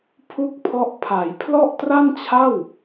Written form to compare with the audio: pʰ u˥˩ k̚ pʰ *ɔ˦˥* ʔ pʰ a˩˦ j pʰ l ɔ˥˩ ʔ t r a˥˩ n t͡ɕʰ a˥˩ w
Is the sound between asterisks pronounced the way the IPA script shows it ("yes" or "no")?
yes